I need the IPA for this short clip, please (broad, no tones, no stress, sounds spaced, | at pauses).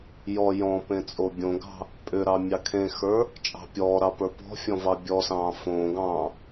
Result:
j ɔ j ɔ̃ p ẽ t͡sʼ o bʲ õ ɡ ɑ̤ | pʼ ʏ ɾ ɑ mʲ ɑ kʰ ẽ x ə˞ | t͡ʃʼ ɑ̤ pʲ ɔː ɾ ɑ p ə˞ p ɔ̤ fʲ ɔ̃ v ɑ bʲ ɔ s ɑ̃ː f õː ɡ ɑ̃ː